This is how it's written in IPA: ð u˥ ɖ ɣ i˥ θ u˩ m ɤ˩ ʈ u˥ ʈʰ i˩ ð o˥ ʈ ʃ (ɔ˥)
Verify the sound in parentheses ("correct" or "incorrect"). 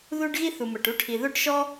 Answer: correct